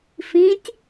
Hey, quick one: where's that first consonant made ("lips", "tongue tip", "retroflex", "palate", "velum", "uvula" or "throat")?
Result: lips